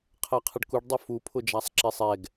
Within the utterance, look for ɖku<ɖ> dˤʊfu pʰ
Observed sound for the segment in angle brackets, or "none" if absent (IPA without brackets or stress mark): ɖ